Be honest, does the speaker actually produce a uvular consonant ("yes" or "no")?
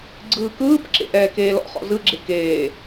yes